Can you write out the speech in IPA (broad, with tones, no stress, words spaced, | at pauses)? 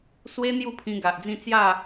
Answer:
swe˧ n̪ju˥˧pʰĩ˧ ɡa˨ʔd͡zĩ˥˧ t͡sja˥˧